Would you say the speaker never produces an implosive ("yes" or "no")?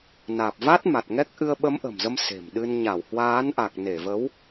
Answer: no